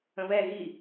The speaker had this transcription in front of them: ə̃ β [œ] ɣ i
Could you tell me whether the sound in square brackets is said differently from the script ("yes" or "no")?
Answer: yes